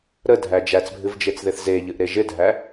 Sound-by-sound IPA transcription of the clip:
ɾədʱæ d͡ʒæt͡sbʱɨvd͡ʒet͡sðɪθ zeʎɨʔɾe ʒɪdʱæ

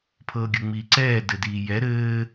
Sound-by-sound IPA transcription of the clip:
pʰɤːɡʲɤŋ͡miːǀɛː dɘdiːjɛ ɾɘː

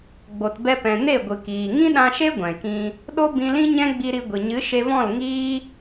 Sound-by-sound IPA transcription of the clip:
ɡ͡bo˨tbɛ˧pɛ̃˨ ne˦˨ɡʷɨ˨kiː˨ ŋĩ˦ɗã˧ʃe˦ ɡʷɛ̃˨kĩ˧ | ɗo˦bĩ˧lĩ˦ɲɛ̃˦ ɡ͡bi˧ɾi˧ ɡʷi˨ɲɨ˨˦ʃe˧vɔ̃˦˨l ŋiː˦

